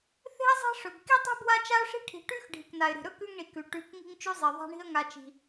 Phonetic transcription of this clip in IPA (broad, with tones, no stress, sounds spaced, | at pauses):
θ e̤˦ ə̯ zˤ e̤˦ ʂ ɵ˨ b k i˦ tˤ e̤˦ b w a˦ t͡ʃ a˦ ʊ̯ ʂ i̤˦ ʈʰ i̤˨ ʈ ʉ˦ x ɖʱ i˨ k n a˨ ɪ̯ ɾ i̤˨ ɾ ɵ˦ k ʉ˦ ŋ ɳ i˨ k ʉ˨ ʈ ʉ˨ k ŋ i̤˦ ŋ t͡ʃ ʉ˦ zˤ e˨ ðˤ a̤˦ ɳ i̤˦ ə̯ ŋ a˨ t͡ʃ i̤˨